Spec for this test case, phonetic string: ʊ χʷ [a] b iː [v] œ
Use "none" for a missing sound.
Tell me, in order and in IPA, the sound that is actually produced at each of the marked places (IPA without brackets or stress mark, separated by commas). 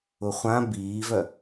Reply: ã, v